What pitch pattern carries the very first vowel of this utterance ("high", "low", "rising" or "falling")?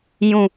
low